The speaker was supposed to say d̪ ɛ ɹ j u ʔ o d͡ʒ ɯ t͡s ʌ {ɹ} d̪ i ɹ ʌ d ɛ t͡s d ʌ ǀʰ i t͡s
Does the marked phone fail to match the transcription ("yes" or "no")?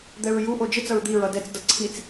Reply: no